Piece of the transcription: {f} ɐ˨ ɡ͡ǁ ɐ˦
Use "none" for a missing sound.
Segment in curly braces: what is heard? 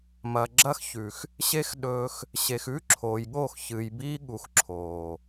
m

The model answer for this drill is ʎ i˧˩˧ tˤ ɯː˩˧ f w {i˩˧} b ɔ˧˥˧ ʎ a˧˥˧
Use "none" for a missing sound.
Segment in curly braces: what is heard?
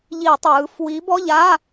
i˨˥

